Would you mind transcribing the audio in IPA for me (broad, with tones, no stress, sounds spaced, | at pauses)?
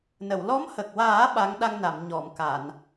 n ə˨˩˨ w l ɔ˧˥ m h ə˨˩ k̚ w aː˨˩˦ ɓ a˧˥ ŋ ɗ a˧ ŋ n a˨˩˨ m ɲ ɔ˨˩˨ m k a˨˩˨ n